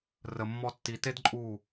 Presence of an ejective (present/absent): present